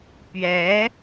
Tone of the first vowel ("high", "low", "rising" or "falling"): rising